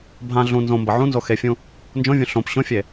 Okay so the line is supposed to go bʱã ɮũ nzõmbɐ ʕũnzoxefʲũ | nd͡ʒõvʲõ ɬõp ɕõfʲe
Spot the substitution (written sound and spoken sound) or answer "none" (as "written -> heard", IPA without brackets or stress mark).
none